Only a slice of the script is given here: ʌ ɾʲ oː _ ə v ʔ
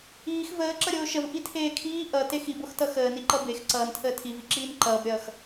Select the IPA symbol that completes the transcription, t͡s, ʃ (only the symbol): ʃ